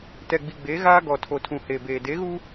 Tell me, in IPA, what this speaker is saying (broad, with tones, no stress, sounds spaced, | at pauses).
t ɛ˨ ɡ͡b i˨ ɡ͡b eː˨˦ ɣ aː˦ ɡ ɔ˨ tʰ o˨ tʰ ũ˨ h eː˨ b eː˨ d e˨˦ ɣ u˦